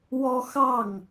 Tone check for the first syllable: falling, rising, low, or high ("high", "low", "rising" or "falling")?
high